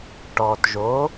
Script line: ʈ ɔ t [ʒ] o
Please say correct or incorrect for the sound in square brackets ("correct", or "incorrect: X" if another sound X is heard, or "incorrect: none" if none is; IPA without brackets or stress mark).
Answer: correct